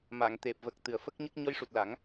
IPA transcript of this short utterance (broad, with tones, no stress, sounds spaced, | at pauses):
m a˨˩˨ ŋ t̪ e˨˩ p̚ v ə˨˩ k̚ t̪ ɨ˨˩ ə̯ f ə˦˥ k̚ ɲ ə˦˥ k̚ ɲ ɔ˧˥ j ʂ u˨˩ t̚ l a˨˩˦ ŋ